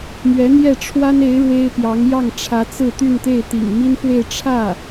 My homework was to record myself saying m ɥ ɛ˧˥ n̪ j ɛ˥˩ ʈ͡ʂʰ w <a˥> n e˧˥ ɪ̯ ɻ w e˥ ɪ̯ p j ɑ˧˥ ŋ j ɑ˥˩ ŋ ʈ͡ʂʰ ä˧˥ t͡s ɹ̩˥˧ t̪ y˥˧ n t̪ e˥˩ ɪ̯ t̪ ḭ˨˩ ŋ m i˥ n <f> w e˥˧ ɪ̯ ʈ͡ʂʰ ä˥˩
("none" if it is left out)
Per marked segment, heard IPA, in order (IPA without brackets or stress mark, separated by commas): a˥, f